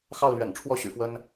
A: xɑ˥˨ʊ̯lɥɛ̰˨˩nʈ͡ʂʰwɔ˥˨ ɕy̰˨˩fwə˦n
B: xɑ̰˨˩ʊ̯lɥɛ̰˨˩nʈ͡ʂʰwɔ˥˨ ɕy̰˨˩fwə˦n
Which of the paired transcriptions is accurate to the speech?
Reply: A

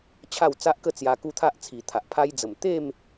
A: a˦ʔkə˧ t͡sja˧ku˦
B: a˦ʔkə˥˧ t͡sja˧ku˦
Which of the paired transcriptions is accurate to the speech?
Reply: B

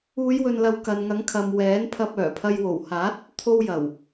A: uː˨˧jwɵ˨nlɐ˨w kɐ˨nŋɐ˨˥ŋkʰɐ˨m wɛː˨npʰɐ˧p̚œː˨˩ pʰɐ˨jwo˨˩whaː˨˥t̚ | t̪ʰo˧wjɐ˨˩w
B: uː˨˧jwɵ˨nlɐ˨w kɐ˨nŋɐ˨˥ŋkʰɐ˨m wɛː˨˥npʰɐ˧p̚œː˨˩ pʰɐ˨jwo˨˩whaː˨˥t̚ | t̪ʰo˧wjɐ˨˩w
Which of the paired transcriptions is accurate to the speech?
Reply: B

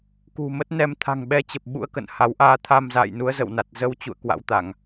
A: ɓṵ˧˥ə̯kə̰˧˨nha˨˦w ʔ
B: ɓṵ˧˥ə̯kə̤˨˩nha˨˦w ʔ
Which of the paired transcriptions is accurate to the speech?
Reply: A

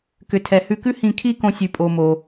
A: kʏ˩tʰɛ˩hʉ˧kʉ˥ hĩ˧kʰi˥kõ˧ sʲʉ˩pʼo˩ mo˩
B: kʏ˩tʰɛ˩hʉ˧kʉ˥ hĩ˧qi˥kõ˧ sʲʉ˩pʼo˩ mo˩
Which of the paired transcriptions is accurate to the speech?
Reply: A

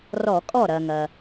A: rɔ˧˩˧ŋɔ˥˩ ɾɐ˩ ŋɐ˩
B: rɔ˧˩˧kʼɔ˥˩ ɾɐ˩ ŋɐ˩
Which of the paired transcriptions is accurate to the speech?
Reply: B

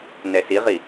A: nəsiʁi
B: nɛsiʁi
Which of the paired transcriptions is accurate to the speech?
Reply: B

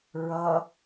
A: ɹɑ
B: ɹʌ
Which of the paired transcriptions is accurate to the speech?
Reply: B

